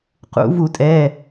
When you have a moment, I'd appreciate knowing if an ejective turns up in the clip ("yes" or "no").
yes